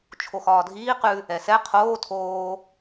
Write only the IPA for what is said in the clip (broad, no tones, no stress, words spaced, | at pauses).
t͡ʃʰoxɒːdʱiː qʉ | ɛsɛ qʰoː tʰoː